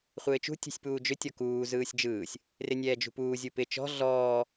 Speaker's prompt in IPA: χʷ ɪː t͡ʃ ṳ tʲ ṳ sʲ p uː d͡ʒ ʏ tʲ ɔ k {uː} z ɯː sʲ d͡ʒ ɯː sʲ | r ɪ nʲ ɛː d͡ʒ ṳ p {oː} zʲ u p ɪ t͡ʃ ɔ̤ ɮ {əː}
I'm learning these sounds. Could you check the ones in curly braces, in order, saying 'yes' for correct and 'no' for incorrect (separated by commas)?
yes, no, no